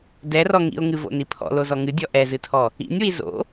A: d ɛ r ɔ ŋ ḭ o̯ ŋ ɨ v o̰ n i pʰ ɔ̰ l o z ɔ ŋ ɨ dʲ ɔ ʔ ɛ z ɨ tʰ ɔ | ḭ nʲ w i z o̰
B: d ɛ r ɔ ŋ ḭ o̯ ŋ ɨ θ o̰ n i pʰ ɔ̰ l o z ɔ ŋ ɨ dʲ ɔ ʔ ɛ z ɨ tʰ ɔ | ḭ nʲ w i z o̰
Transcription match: A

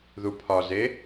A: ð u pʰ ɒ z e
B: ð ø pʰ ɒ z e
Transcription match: A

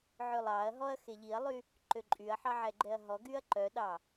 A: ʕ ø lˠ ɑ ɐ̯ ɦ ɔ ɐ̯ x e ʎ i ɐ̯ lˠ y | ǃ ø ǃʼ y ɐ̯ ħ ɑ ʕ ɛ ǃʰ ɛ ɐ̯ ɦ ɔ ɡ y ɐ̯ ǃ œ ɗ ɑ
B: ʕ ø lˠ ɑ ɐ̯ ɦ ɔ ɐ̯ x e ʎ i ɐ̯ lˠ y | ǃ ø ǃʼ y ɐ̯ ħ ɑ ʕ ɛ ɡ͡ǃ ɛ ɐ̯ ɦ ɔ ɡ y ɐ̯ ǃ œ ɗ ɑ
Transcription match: B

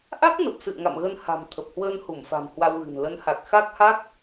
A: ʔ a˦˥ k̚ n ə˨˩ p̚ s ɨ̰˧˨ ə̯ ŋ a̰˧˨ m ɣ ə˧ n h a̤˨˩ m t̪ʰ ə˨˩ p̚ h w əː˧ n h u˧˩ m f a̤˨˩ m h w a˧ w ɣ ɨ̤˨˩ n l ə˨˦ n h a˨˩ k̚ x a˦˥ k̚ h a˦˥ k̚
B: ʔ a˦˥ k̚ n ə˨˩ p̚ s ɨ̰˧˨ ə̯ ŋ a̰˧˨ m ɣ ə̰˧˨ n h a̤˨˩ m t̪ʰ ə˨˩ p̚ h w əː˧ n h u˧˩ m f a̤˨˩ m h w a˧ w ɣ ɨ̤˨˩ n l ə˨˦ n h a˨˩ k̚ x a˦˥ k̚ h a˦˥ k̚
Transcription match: A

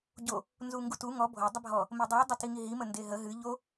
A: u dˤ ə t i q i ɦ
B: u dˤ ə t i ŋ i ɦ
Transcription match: B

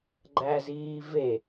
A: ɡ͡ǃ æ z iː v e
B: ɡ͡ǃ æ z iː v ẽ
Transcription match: A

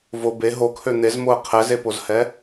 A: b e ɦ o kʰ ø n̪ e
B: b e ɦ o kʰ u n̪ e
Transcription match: A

